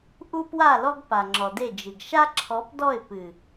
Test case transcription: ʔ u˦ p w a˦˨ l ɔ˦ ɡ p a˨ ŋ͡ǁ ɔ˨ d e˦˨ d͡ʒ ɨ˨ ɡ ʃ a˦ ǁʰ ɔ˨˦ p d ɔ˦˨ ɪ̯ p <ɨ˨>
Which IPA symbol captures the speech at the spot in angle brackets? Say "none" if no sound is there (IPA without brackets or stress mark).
ɨ˨